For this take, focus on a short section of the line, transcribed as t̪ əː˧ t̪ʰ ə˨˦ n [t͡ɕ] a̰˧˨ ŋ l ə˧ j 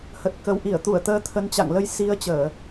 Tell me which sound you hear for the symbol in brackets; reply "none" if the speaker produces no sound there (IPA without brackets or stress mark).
t͡ɕ